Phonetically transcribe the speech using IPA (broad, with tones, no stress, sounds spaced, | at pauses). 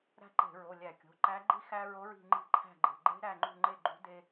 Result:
ɾ æ̤˥ ǃ e̤˧˩˧ ɹ o˩˧˩ lʲ æ˧˩˧ kʲ o̤˩˧˩ ǃ æ˧˥ ɡ͡ǃ i˥ x æ˥ ɹ o˧˥ ɹ i̤˦˨ ŋ͡ǃ i̤˦˨ ǃʰ æ̤˦˨ ɡ͡ǃ e̤˩˧˩ ɡ͡ǃ e̤˥ ɾ æ˦˨ ŋ͡ǃ ṳ˦˨ ŋ͡ǃ e˦˨ ɡ͡ǃ ṳ˧˥ d e˥